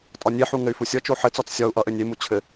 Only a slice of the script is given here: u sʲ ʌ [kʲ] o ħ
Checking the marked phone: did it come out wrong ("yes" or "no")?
yes